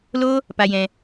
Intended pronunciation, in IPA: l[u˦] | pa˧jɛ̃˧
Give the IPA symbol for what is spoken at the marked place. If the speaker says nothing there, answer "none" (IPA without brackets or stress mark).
o˦